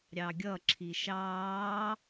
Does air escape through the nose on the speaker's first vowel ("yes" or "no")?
no